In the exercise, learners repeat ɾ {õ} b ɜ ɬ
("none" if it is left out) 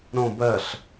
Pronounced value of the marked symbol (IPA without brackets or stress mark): õ